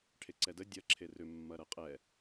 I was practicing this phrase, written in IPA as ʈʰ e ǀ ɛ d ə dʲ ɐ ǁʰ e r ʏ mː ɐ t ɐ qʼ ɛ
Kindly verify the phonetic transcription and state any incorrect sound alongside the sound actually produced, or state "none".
t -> ɾ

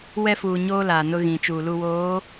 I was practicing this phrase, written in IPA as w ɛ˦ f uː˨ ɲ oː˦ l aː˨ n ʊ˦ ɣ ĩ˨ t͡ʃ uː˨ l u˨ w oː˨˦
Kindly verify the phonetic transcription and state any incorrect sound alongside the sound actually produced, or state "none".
none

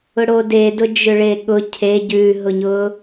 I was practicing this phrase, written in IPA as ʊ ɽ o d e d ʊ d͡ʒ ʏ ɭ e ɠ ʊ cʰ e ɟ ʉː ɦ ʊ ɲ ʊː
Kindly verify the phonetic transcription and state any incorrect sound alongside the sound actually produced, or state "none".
none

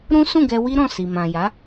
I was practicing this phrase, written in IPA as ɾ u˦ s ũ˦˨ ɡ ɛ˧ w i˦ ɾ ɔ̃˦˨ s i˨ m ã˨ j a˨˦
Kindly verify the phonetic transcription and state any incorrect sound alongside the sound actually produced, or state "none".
u˦ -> ũ˦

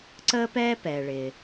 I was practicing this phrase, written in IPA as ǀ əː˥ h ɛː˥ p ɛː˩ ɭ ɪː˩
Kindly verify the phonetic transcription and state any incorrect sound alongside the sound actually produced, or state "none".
h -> p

